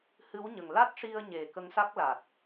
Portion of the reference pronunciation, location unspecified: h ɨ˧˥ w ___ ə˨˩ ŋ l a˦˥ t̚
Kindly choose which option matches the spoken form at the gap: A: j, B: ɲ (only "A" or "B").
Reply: B